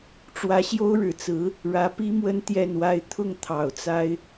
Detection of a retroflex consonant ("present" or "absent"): present